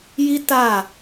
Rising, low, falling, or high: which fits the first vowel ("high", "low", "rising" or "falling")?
high